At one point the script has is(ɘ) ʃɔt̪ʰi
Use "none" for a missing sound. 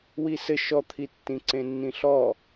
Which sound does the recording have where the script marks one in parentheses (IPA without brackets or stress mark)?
ɘ